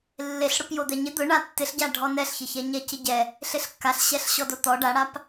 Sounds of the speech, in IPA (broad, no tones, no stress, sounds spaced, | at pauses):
lː e ɬ ɽ ʊ p j o d̪ ɛ ɲ ɪ d̪ ʊ ɳ a tː ɪ ɬ ɟ a ɖʱ ɔ n ɛ ɬ ç ɪ ç ɛ ɲ ɛ c ɪ ɟ ɛ | ɬ ɪ ɬ kː a ɬ ɕ ɛ ɬ ɕ ɔ d o t̪ ɔ ɖ a ɽ a p